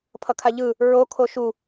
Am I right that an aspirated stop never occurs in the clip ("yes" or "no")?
no